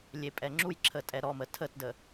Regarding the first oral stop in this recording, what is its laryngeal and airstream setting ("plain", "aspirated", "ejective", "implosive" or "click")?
ejective